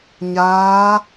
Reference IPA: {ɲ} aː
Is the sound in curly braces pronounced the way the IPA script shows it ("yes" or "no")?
yes